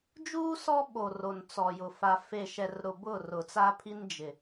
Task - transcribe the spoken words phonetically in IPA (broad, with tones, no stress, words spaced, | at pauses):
d͡ʒuː˦ sɔ˦ ɓo˨ ro˨nt͡sɔ˨jʊ˨ fa˨ fe˨ʃɛ˨rɾʊ˨ bʊ˦˨rʊ˨t͡sa˦pʰi˦n d͡ʒɪ˨